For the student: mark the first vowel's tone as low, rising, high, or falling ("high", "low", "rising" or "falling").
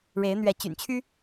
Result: rising